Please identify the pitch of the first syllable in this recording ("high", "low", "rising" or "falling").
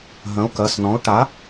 rising